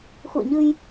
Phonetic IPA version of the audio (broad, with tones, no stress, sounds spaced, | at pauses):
x ṵ˧˨ ə̯ ɲ ɨ˧ j